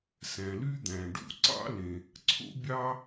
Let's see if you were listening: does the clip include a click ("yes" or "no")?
yes